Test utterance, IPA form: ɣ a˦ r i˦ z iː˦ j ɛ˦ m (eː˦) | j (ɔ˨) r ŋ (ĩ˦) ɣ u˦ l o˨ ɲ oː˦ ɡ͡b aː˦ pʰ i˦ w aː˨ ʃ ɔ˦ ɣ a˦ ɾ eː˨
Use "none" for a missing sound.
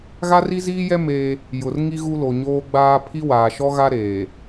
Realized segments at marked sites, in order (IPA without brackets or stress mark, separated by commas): eː˦, ʊ˨, i˦